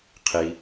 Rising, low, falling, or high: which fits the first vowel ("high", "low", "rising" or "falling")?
low